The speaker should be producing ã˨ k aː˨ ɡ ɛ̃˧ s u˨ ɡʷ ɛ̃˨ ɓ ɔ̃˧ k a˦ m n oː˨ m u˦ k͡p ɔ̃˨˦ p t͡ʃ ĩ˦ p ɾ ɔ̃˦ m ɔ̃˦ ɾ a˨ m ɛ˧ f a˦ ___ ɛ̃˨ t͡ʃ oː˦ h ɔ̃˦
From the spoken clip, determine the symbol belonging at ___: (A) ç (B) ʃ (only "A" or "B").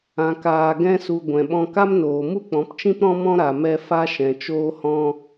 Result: B